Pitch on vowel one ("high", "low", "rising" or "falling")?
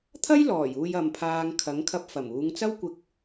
high